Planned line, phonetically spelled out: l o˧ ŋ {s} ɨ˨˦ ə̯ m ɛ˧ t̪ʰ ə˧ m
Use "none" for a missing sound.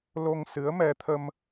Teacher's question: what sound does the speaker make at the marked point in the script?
s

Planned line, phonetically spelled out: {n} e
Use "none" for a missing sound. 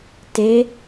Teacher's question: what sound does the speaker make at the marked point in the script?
t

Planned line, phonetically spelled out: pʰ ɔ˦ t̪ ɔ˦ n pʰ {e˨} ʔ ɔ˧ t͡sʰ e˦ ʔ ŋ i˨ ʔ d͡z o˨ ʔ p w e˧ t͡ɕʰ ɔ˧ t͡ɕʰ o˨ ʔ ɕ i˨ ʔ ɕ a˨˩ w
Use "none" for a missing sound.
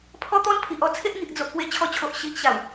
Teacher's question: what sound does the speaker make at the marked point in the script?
i˨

